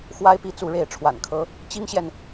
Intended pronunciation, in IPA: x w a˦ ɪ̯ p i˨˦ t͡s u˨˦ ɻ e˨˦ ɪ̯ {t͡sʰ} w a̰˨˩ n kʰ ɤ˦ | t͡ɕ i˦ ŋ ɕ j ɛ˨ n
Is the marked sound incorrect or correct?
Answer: incorrect